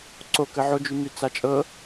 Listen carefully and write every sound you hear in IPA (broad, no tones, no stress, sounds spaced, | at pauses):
ǀ o k ə ʕ o d͡ʒ y m y t͡s a t͡ʃʼ ɤ